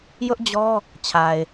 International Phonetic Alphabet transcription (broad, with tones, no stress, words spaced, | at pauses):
jʊ˦ʔd͡ʑɔ˦ | t͡ɕʰa˨ɪ̯